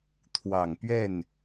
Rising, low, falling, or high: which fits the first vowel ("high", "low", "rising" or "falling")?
low